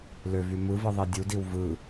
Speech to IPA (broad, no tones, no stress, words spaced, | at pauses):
løvy mɯvɯðˤi dʲudiw vɯ